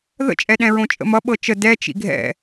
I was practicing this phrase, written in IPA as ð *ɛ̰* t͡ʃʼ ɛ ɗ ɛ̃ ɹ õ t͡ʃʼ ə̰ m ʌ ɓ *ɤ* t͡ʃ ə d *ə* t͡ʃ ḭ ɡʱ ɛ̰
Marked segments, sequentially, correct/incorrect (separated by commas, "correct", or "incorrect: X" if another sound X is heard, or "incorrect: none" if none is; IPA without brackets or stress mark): incorrect: ə̰, correct, incorrect: ɛ